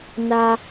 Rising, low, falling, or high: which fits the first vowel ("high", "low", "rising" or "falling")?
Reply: high